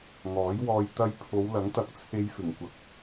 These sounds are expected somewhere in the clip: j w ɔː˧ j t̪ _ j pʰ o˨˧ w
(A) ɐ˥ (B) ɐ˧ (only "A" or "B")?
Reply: B